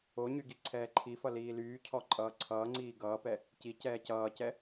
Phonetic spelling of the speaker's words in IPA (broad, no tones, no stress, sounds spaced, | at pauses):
o ɲ y ɡ i ǀʰ ɛː ǃʰ i f ʌ l iː l yː cʰ ɔ ǃʼ ʌː ǀʰ ʌː ŋ͡ǀ iː ɡ ʌː p ɛ | c i c ɛː c ʌː c ɛ